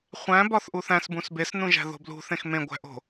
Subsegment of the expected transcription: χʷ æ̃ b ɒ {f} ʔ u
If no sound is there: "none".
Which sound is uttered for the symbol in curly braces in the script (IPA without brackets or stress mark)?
θ